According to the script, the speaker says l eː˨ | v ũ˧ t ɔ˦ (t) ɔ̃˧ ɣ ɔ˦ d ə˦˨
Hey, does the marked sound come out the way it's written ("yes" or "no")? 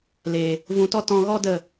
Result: yes